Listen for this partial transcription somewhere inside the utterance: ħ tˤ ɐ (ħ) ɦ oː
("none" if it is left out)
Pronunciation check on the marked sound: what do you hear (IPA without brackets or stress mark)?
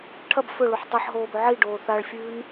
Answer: ħ